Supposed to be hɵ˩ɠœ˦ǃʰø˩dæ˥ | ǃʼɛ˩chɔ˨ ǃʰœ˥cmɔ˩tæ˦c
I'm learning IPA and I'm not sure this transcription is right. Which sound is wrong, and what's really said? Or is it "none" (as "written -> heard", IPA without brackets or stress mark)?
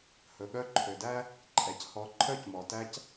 none